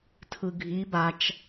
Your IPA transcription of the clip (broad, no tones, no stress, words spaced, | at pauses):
tʰɯɡʱi bat͡ʃ